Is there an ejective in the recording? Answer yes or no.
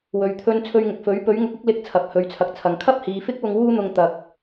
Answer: no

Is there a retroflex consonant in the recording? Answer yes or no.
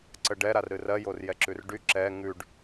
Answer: yes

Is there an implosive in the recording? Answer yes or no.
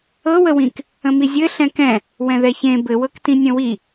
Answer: no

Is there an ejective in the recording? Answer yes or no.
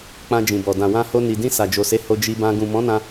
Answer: no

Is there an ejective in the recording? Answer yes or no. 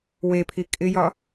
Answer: yes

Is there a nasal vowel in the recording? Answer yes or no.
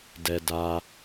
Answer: no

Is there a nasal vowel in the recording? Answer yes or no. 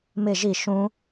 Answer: yes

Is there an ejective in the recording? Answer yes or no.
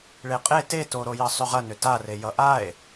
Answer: yes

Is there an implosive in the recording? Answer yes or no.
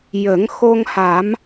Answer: no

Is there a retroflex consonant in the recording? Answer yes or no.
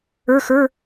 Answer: no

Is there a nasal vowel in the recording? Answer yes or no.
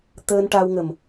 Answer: no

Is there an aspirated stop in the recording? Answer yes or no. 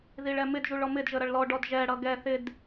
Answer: no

